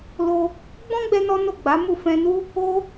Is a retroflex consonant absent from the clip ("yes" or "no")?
yes